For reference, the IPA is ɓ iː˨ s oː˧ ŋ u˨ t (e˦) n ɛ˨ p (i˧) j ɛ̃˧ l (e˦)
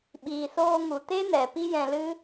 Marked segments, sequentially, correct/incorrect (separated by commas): correct, incorrect, incorrect